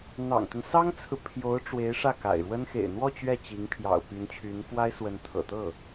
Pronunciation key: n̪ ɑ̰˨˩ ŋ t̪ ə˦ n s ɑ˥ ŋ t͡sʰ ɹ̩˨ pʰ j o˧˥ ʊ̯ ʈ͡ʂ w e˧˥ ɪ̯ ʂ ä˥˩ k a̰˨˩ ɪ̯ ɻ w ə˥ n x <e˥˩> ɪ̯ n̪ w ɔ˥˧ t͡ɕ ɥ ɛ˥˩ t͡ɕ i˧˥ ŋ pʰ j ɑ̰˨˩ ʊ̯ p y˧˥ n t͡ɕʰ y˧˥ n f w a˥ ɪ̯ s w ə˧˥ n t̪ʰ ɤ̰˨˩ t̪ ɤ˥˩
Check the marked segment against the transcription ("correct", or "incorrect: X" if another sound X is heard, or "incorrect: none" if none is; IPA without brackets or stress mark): incorrect: ḛ˨˩